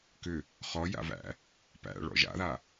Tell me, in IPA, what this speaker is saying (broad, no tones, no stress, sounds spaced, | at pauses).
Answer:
k ʏ | χ ɔ j a̰ v æ̰ | p æ̰ ɭ ɔ̰ ʒ a̰ ð a